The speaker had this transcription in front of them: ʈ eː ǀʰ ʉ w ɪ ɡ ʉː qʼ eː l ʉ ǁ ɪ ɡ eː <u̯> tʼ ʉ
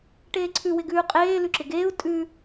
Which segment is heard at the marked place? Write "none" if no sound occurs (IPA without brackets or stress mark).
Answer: u̯